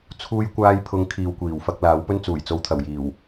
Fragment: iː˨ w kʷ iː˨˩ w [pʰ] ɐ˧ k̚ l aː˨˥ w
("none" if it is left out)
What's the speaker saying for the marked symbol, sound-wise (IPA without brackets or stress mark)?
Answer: f